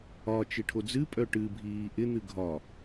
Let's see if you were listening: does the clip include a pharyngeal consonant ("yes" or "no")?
no